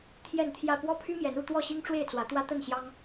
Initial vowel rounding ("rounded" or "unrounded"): unrounded